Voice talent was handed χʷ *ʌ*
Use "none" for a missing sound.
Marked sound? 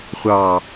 ɑ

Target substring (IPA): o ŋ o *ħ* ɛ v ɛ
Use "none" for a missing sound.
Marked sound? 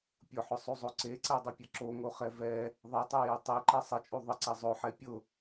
χ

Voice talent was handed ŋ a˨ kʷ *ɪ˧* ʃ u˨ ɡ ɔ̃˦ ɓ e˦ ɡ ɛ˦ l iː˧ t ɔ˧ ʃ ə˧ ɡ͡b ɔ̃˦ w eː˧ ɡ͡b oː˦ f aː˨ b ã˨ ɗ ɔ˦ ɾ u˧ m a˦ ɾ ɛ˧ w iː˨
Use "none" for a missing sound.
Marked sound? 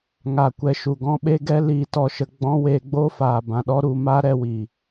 ɛ˧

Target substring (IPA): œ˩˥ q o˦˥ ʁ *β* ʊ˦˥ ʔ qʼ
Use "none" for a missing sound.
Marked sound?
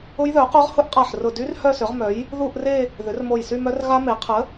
h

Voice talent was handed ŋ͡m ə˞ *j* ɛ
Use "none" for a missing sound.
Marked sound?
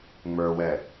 w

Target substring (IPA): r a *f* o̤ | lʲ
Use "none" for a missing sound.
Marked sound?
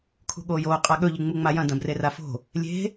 f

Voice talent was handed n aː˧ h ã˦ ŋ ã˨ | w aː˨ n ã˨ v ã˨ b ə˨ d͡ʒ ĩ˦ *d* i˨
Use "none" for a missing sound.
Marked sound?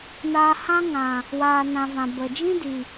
d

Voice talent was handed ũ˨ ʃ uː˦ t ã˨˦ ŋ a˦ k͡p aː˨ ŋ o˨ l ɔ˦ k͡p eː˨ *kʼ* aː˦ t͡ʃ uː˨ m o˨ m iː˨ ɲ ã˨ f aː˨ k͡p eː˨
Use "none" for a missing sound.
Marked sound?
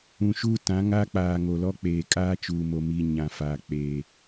kʼ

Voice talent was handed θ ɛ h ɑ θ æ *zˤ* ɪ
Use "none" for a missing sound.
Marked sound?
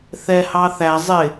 zˤ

